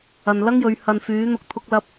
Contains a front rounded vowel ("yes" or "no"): yes